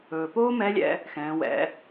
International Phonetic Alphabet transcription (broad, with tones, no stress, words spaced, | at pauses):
ɵː˩poː˥mɛ˧˥lʲɛ̰˧ | xɛ̃ː˩˧wɛ̰˩˧